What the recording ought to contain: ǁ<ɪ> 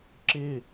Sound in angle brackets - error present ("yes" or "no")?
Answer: no